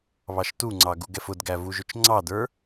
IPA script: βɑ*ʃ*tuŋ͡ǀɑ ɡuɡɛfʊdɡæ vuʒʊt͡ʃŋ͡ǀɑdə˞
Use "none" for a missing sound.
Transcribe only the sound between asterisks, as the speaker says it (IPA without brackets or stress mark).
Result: ʃ